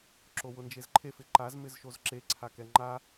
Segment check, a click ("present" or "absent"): present